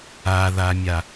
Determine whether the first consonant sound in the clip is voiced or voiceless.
voiced